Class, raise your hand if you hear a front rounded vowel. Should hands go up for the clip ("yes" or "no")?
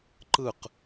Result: no